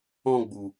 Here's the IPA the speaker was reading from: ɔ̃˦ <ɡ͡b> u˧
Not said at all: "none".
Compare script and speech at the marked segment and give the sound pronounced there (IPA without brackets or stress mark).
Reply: ɡ͡b